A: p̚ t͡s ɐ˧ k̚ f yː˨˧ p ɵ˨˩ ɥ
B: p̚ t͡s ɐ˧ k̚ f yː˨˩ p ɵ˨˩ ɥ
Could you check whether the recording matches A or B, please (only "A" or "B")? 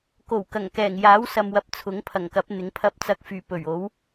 B